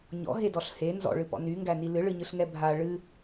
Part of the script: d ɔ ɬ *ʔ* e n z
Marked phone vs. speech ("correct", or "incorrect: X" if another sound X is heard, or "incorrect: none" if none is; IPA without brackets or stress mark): incorrect: h